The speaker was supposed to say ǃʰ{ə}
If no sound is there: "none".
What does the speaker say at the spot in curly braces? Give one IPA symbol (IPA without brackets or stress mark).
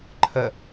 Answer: ə